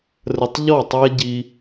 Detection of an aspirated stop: absent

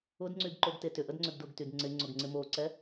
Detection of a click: present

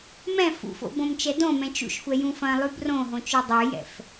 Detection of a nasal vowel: present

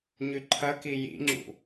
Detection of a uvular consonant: absent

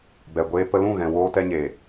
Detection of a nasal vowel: present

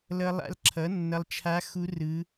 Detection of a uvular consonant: absent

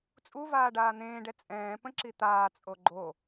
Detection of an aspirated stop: absent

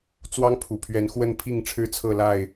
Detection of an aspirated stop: present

